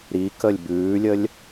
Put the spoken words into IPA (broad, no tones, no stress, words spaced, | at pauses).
ɾi kəlʲbʉːlʲəlʲ